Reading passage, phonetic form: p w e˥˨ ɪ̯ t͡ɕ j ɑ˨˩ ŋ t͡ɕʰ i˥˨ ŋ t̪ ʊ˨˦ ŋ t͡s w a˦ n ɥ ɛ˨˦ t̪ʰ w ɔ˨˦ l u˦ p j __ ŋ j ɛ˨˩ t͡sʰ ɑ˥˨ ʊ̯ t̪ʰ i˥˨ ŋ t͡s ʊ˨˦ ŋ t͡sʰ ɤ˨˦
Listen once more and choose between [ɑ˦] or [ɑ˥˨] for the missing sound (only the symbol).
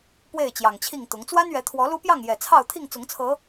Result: ɑ˥˨